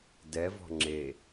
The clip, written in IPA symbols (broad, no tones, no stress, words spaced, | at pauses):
dɛvɔ̤ ŋ͡ǁe